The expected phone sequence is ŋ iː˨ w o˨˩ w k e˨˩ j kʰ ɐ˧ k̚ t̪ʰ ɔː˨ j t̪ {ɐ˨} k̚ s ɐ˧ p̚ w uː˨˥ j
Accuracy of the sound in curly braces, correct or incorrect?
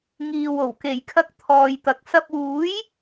correct